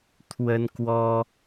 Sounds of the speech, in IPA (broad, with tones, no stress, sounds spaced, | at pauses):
t̪ʰ w ə˦ n k w ɔ˦